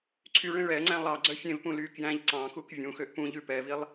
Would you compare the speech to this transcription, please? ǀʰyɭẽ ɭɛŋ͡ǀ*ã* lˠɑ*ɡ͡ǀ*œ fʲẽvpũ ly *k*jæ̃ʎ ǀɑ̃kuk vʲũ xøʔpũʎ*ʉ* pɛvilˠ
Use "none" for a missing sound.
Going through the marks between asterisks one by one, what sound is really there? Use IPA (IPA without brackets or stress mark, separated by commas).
æ̃, ɡ͡ǀ, k, ʉ